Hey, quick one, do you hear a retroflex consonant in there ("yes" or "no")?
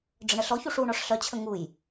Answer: yes